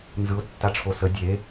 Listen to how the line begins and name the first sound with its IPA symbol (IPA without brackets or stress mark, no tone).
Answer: n